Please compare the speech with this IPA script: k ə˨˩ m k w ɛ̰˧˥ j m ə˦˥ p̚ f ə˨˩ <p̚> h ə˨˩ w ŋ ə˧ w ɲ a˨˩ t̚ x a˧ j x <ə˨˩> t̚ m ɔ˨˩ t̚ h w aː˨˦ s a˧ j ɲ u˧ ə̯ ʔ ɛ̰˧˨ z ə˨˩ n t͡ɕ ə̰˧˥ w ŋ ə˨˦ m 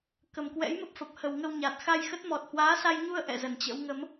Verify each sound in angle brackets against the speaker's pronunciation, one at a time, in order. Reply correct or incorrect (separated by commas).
correct, incorrect